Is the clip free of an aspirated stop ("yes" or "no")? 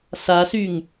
yes